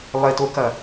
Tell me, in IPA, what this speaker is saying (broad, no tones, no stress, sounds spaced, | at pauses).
lˠ ɪ t o k ɐ